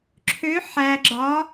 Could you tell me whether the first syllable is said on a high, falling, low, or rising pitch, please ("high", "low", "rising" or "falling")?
rising